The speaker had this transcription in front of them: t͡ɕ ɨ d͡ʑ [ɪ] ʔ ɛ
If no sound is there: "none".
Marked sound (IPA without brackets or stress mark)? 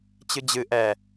ɨ